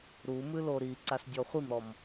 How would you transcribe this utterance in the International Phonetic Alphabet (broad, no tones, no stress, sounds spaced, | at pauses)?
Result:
ɾ u m ɨ l o ɾ i ǀ a s dʲ ɔ χʷ i m ɾ ɔ m